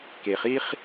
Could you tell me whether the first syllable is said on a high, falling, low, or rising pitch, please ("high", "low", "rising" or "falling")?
low